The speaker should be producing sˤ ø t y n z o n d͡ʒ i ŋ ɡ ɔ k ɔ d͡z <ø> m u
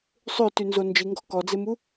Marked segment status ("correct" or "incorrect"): incorrect